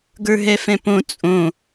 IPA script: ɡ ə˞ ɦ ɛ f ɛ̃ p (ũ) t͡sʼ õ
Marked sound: incorrect: õ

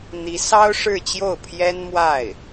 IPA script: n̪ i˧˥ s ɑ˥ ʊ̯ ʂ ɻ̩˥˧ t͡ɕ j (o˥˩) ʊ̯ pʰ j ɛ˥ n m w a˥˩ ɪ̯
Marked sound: correct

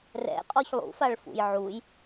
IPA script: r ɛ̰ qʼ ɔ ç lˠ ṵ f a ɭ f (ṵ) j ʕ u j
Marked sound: correct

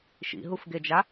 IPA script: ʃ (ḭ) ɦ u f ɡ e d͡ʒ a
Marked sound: correct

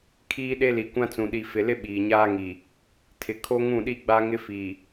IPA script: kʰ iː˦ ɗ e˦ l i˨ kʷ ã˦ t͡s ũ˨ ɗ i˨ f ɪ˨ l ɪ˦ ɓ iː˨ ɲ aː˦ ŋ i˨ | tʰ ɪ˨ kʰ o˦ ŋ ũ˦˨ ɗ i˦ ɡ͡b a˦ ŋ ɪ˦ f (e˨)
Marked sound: incorrect: i˨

